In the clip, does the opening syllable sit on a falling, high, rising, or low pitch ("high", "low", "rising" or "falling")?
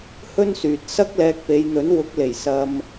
high